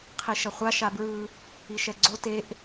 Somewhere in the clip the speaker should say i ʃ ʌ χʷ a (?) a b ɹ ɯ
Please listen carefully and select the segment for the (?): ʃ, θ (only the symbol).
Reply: ʃ